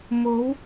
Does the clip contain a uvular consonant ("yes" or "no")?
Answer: no